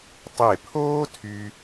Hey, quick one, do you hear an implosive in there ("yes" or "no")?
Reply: no